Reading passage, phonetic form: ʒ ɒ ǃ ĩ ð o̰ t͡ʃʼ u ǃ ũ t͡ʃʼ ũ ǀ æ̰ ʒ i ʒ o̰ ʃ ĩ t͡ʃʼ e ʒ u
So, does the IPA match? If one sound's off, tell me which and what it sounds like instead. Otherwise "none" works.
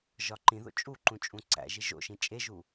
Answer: none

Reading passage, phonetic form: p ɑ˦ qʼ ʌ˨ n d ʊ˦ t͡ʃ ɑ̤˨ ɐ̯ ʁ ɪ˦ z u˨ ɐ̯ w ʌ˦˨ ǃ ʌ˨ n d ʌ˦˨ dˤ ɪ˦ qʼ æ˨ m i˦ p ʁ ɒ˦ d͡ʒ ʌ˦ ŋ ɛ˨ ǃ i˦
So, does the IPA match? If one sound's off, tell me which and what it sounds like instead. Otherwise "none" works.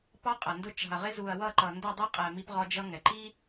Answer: none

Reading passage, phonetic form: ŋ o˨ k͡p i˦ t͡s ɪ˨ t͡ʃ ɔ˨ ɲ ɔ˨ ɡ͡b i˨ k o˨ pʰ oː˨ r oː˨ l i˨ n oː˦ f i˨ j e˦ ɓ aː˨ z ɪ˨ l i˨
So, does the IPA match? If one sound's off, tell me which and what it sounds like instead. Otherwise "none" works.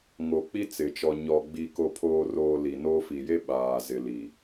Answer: none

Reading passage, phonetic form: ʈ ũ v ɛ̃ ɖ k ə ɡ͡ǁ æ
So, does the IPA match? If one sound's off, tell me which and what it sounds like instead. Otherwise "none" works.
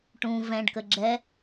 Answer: æ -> ɛ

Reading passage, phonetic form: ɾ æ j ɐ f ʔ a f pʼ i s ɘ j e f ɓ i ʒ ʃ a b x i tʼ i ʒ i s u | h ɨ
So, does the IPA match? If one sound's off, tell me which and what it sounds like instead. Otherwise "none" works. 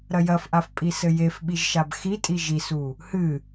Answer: æ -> ɐ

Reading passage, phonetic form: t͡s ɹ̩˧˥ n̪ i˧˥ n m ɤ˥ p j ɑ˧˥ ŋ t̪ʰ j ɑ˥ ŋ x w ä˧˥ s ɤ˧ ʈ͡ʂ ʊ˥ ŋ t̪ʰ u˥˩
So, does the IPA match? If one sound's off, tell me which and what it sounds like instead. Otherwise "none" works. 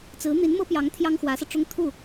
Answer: none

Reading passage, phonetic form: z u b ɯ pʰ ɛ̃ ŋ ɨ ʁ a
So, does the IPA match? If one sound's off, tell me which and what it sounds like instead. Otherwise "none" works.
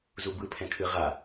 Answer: ŋ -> kʰ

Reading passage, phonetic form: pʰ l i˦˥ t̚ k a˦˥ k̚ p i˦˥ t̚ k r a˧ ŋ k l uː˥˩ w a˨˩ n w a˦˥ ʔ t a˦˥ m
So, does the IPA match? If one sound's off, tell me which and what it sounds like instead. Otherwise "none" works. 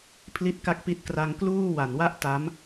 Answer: none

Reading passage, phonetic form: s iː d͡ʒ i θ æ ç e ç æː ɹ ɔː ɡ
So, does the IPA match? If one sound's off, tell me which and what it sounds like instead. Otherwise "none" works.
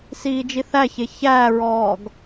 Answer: none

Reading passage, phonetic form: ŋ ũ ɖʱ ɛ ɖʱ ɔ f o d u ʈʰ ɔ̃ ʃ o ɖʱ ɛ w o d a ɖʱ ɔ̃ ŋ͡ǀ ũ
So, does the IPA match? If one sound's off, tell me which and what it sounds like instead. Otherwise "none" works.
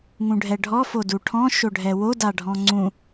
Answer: none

